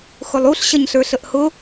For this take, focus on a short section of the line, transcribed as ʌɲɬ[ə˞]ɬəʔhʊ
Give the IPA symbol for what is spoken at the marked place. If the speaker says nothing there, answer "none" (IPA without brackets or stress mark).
ə˞